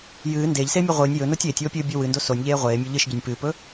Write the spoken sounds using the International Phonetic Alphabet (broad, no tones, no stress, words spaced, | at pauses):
jɨː ndeːʎseːmʲʉ ʁʷɨːnʲ jɵnotʲ eːtʲwopʲɨːbʲo wɨndo sonʲʎeː ʁʷeːmʲo ʎɨʃɟɵnʲ pɨːpɵ